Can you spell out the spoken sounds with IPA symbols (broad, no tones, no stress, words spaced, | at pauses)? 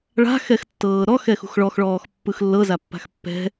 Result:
ɭa̤ xɛxtːɤːɾɔ xɛxṳxɭɔx ɭɔːxpːɯxlːɤ zapːa̤xpːɛ̤